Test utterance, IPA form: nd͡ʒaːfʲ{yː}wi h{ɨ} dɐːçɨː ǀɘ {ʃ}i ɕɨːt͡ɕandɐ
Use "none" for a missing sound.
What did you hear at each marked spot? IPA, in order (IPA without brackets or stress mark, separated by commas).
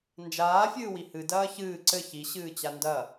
ɨː, ɨ, ç